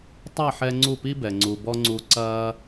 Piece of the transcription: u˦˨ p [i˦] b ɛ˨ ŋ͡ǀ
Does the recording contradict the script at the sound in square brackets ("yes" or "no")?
no